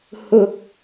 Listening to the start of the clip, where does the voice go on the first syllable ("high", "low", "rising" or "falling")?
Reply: high